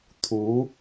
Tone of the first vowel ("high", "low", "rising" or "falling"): rising